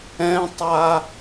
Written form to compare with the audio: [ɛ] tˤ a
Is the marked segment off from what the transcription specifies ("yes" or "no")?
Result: yes